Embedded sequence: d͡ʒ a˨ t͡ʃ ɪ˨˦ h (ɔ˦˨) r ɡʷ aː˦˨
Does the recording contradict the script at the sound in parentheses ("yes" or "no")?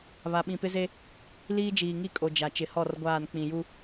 no